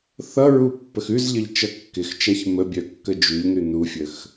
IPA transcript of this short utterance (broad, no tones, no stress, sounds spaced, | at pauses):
θ ʌ ɹ u pː ə x ʉ z ʎ ə ʎ t͡ʃ ʌ kː ɪ x t͡ʃ a ç m ə bʲ œ kː ə d͡ʒ ʉ ʎ n ʉ n u fʲ ə x